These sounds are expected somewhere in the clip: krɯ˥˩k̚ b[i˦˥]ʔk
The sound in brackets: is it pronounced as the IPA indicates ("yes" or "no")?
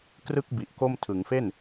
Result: no